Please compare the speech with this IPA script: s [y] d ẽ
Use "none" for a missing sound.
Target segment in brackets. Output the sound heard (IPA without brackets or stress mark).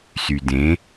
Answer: y